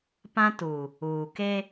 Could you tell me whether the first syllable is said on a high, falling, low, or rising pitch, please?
high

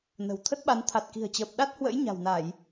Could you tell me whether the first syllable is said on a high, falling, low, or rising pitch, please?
low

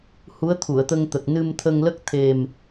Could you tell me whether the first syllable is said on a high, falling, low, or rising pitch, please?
rising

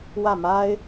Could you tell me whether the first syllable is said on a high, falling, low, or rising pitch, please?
falling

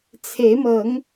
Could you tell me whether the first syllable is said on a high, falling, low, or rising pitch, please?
rising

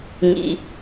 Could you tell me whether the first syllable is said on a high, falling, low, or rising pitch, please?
low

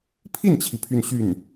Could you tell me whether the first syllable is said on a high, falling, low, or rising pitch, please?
falling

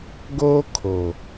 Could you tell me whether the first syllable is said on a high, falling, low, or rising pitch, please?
high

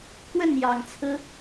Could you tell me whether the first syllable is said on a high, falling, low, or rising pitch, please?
falling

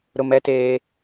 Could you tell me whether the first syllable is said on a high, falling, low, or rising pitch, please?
high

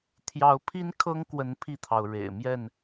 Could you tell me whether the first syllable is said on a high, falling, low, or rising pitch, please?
rising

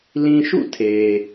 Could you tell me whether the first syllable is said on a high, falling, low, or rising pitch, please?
low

